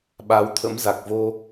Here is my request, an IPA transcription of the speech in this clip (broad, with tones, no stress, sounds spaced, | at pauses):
ɓ a˨˦ w t̪ʰ ə̰˧˥ m z a˨˩ k̚ v o˧